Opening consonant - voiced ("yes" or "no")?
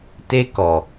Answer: no